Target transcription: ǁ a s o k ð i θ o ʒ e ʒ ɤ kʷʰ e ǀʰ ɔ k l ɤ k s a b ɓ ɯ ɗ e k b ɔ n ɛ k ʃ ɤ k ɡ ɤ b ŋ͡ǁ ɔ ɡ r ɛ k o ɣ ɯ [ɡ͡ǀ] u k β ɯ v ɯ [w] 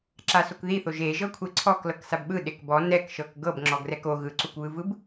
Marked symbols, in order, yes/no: no, no

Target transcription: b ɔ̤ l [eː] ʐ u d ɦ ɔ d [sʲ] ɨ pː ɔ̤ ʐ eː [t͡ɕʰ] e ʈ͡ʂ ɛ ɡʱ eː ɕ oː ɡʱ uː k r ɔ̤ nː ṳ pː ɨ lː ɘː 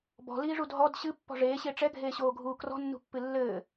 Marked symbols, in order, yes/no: no, no, no

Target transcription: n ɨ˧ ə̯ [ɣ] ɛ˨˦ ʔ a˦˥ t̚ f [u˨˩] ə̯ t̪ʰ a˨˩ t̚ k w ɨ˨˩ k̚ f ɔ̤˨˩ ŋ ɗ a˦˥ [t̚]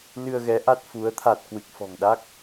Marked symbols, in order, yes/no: yes, no, no

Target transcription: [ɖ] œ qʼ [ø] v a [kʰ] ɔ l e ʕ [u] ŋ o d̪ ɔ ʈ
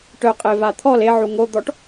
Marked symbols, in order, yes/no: no, no, no, yes

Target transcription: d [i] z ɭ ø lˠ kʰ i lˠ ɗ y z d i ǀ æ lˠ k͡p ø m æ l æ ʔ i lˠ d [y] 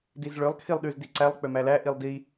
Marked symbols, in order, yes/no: yes, no

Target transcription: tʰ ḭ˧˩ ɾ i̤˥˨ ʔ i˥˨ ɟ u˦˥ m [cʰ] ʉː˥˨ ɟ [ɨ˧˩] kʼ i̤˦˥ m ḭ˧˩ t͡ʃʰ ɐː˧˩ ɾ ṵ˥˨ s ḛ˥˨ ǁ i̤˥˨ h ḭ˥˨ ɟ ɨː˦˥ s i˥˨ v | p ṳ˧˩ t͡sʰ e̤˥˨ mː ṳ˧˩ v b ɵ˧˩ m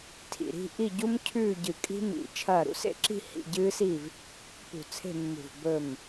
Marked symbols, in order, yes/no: yes, yes

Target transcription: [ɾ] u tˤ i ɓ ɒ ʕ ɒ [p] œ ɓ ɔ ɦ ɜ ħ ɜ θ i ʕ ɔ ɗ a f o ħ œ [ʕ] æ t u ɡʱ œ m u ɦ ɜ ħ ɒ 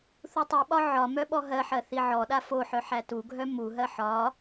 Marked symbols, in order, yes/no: no, no, no

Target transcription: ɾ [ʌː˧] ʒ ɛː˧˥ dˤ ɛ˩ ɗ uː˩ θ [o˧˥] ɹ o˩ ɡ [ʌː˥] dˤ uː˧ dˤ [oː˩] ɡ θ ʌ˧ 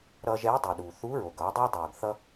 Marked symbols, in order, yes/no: yes, no, no, yes

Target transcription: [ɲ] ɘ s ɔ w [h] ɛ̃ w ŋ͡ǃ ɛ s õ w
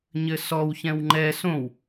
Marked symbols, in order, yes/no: yes, no

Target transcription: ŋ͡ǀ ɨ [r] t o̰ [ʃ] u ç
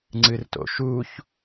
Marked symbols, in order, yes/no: yes, yes

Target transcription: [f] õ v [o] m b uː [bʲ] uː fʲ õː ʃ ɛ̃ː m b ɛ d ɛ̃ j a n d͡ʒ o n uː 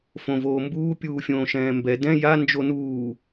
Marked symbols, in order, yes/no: yes, no, no

